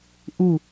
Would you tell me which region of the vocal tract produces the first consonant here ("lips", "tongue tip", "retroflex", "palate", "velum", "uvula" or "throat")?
throat